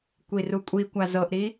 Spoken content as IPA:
kʷ i r u kʷʼ i kʷ a z ɤ ʔ ɾ i

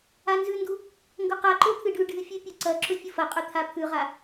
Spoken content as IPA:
a n z ʉ n d u | ŋ ɡ ɵ q a ǃ o t̪ʰ ɨ ɖ ʉ ɖ ɨ fʲ ʉ pʲ ɵ ǀ ɐ ǁ ɵ fʲ ɨ f ɐ qʼ ɵ t̪ʰ a pʰ ʉ ʁ a

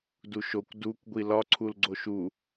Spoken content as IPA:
d u ʃ o kʷ d u kʷ ɡʷ i l ɒ ǀʰ u l ɡ͡ǀ o ʃ u

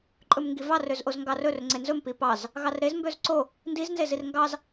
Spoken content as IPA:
ǃʼ ɵ m ŋ ɡ i v ɑ r ø z ʔ o z ŋ ɡ ɑ r ɵ r ŋ͡ǀ e n z ɵ m p i p ɑ z | ɣ ɑ r ɾ e z m b ø z ǀ o | n d i z n z e z i r ŋ ɡ ɑ z

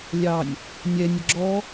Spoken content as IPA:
lʲ ɑ nʲ | nʲ ɛ nʲ ə ɡ͡ǁ ɔ

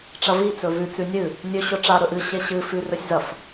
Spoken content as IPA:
ʈ͡ʂ ɐ v i t͡s ɵ v ʉ t͡s ʉ nʲ ɨ | nʲ ɵ ɕ ɵ ʈ͡ʂ a ɾ ɵ ʔ ɨ ɕ e ɕ ɨ f ʉ r ɵ sʲ z ɐ f

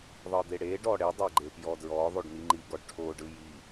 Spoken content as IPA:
ðˤ ɤ d̪ e ɽ e ɖ ɔ ɽ e dˤ e ɡ͡ǃ e p j ɔ d ɹ ɔ ðˤ o ɖ n̪ i ŋ͡ǃ i ɡ ɔ ɖ ʈʰ o ɖ ɯ j i

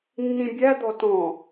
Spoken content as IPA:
nː ĩ bʲ æ d̪ ɔ t ɔ̃

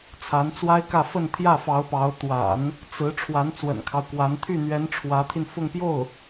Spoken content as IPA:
t͡sʰ a˧˥ n t͡s w a˥ ɪ̯ k ä˥˧ f ə˥˧ n t̪ʰ j ä˥˩ f ɑ˧˥ ʊ̯ p ɑ˧˥ ʊ̯ t̪ w a̰˨˩˦ n | t͡s ɹ̩˧˥ ʈ͡ʂʰ w a˧˥ n t͡s w ə̰˨˩ n kʰ ɑ˦ ʊ̯ k w a˧˥ n t̪ʰ y˥˩ n̪ ɥ ɛ˧˥ n ʈ͡ʂʰ w ä˧˥ t̪ʰ i˧ n f ʊ˥˧ ŋ p j o˥˩ ʊ̯

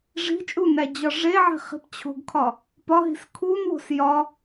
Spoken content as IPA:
ʐ i̤ t͡ʃʼ u n æ d͡ʑ ɒ ʐ e ʕ i̤ χ i̤ p t͡ɕʰ o̤ ɡ kʰ ɒ | p ɒ ɦ i̤ s kʰ u n w o̤ s j ɒ

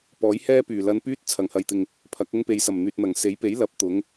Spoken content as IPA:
p ɔː˨˥ j h ɛː˥ p yː˨˩ l ɐ˧ n p yː˥ t̚ t͡sʰ ɐ˨˩ ŋ h ɐ˨ j t̪ ɪ˨ ŋ | pʰ ɐ˨˥ k̚ ʊ˥ ŋ p e˨ j s ɐ˨˩ m n̪ yː˨ t̚ n̪ ɐ˨˩ ŋ s e˨˥ j p e˨˥ j l ɐ˨˥ p̚ t̪ ʊ˨˥ ŋ

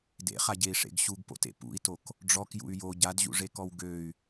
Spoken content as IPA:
d ḛ χ a ɟ e i̯ ʂ ḛ ɡ ɕ u ɡ p o̰ t ḛ p ṵ i̯ t o k | ɖ͡ʐ ɔ k j ṵ y̯ j o ɟ a d ʑ ṵ ʐ e k ɔ w ɡ ø y̯

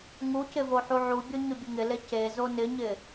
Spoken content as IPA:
ŋ u c ɪ v o ħ u ʕ u bʲ o ɲ ʊ bʲ ʊ ŋ ɪ l e c e z o n ɪ ɲ ɪ

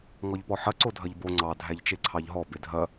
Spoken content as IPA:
ŋ ɔ ʎ p ɔ ħ ɐ ǀ o dʱ ɐ ʎ b o ŋ͡ǀ ɑ dʱ æ ʎ t͡ʃ e ǀʰ ɑ ʎ ɦ ɔ b e dʱ ɐ

